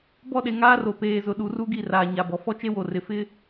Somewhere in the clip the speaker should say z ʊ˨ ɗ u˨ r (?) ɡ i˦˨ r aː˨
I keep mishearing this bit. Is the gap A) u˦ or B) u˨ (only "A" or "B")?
A